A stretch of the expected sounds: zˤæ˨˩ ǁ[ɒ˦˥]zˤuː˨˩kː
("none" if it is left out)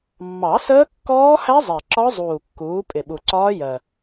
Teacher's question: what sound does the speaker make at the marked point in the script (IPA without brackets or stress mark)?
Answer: ɒ˦˥